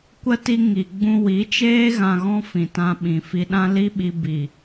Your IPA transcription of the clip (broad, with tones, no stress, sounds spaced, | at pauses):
kʷ ə˦ t i˦ ŋ i˧ ɡ͡b ũ˦ w i˨˦ t͡ʃ eː˦ ɣ ã˧ ɣ ɔ̃˦ f ĩ˨ t ã˧ ɓ ĩ˨ f i˧ ɗ ã˦ l i˦ ɓ i˧ b i˨